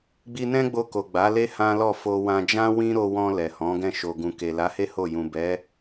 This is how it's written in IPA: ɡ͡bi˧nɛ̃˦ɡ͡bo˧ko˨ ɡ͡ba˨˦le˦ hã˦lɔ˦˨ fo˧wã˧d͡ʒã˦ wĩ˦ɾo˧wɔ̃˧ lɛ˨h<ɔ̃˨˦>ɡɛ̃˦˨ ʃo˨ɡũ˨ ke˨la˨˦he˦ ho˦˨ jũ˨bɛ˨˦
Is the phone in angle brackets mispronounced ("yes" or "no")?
no